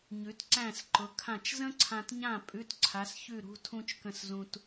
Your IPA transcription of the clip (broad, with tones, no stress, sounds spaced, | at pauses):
ɲ ʉ˨˥ t ǀ æ̃˥˨ s ǃ ʊ˨˥ kʰ ã˥˨ t͡ʃ z ə̃˥ ǀʰ ã˧ t ɲ ã˥˨ pʼ ʉ˧˥˧ t ǀʰ a˨˥ s ç ʉ˥˨ ɾ ṳ˧˥˧ tʰ ũ˥ t͡ʃ k ə̃˥˨ s z ũ˧ t